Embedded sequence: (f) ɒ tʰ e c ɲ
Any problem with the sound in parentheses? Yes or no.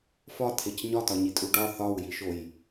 no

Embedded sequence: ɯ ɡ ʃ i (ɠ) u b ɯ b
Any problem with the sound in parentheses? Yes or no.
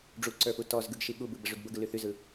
no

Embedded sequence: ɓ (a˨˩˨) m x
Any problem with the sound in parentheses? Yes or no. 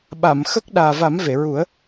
no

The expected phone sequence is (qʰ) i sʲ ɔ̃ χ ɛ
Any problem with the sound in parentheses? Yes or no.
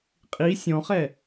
yes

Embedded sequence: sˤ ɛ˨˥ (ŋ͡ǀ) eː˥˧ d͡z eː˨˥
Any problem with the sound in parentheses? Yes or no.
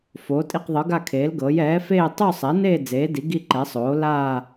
yes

